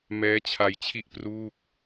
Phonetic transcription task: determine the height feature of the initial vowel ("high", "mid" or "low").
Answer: mid